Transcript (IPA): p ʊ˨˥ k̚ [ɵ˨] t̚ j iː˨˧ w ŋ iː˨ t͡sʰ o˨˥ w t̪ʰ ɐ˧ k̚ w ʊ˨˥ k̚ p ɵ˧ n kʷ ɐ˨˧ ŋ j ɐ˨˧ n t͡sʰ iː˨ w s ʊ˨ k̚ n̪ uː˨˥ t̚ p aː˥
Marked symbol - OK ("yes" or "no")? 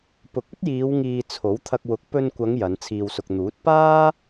no